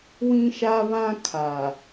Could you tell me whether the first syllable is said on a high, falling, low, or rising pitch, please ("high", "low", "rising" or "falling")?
high